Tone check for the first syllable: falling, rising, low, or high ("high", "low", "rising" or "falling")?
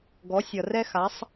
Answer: rising